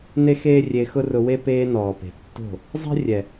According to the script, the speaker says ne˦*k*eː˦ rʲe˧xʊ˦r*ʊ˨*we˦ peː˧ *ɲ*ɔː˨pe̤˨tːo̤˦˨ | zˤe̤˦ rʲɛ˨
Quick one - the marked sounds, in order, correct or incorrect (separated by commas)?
incorrect, incorrect, incorrect